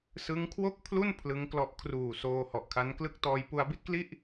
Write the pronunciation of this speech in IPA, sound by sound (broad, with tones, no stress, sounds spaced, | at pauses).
s ɯ˦˥ ŋ kʰ w o˥˩ k̚ pʰ l u˥˩ n pʰ l ɯ˦˥ ŋ k l ɔ˦˥ ʔ kʰ r uː˨˩ s oː˧ h ɔ˨˩ ʔ kʰ a˦˥ n k l ɯ˦˥ k̚ t ɔː˧ j p u˧ a̯ b i˥˩ t̚ k l i˥˩ ʔ